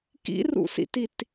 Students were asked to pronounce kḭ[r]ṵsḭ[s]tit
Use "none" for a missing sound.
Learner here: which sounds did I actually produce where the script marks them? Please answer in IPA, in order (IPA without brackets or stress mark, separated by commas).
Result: r, none